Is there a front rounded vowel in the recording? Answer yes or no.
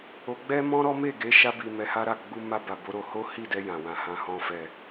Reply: no